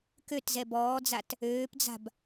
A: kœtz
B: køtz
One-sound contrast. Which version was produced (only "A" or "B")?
B